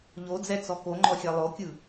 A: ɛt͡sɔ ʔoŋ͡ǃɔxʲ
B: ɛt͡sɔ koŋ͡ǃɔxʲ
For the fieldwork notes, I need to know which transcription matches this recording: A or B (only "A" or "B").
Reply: B